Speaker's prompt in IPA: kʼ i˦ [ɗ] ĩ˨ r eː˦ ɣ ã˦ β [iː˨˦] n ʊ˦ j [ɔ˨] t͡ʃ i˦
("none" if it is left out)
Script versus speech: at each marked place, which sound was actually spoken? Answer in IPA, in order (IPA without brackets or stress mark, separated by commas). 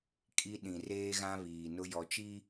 ɗ, iː˨, ɔ˨